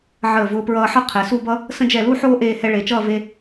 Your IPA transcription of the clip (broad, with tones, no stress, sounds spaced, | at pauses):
ʕ əː˧˩ v ʊː˧ p ɹ ʌː˧ ħ ʌ˥ qʰ ɛ˩˧ s u˥˧ b ʌ˥ | s ə̃˧ d͡ʒ ɛ˧˩ l u˥˧ ħ oː˥ ʔ eː˧ h ɛ˧ ɭ e˩˧ t͡ʃ ʌː˥˧ v e˧